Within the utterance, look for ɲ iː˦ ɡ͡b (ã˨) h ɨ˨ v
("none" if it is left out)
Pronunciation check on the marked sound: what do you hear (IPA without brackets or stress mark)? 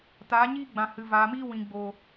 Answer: ã˨